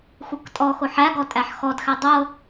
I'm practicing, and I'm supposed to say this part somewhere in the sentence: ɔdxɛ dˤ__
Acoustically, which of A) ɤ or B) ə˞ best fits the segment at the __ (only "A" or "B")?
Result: A